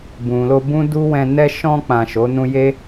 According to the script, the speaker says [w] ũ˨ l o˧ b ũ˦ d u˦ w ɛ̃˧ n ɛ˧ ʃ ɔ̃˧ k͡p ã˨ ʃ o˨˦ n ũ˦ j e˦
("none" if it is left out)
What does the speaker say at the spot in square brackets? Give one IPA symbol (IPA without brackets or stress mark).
b